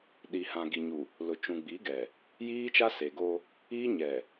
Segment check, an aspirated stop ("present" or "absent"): absent